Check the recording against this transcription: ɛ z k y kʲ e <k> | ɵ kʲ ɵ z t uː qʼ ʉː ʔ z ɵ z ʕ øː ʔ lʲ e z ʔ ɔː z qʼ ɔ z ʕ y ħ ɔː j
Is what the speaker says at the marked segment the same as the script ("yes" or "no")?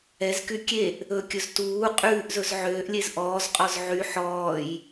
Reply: no